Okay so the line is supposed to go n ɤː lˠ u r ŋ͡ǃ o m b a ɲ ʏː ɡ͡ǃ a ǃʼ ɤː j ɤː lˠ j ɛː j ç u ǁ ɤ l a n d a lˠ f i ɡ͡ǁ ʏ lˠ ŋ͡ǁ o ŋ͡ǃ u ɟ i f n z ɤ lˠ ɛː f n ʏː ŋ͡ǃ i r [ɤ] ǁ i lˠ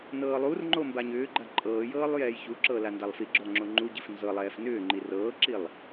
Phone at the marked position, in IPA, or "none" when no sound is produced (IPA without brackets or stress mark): ɤː